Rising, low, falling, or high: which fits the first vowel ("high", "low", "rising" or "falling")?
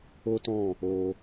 high